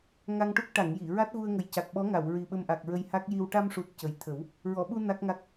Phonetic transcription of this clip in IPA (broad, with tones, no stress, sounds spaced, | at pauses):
ŋ a˧ ŋ ʈ u˦˥ k̚ ʈ a˨˩˨ ŋ j i˨˩˨ ɹ a˦˥ t̚ ɣ u˧ ə̯ ŋ ə˨˩ j c a˨˩ k̚ ɓ ɔ˧˥ ŋ a˨˩˨ w ɹ i˨˩ ɓ ə˧ m ʔ a˨˩ k̚ ɹ ə˧ j h a˦˥ k̚ j i˧ w ʈ a˧ m ʂ u˨˩ t̚ c ə˨˩ j t̪ʰ ə˨˩˦ w | ɹ ɔ˨˩˨ ɓ u˧ n a˦˥ k̚ ŋ a˦˥ k̚